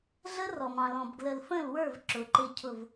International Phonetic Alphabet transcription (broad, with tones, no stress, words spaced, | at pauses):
ɮə˦rɔ˨mɑ̃˨lɔ̃˨b ɡlə˨lfə̃˦˨lwə˞˦˨v ǁʊ˨˦ǃɪ˦cʰʊ˦˨v